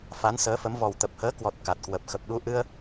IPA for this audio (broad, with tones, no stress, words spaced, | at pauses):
fa˨˦n səː˨˦fə˨˦m vɔ˨˩wt̪ə˨˩p̚həː˨˦kwɔ˨˩t̚ ka˨˩t̚kwə˨˩p̚ xə˨˩p̚ɗu˧ʔɨ˧ə̯